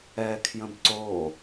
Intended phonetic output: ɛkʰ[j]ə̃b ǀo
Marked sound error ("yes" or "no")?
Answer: no